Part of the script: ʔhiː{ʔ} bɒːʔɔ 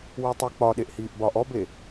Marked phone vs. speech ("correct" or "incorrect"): correct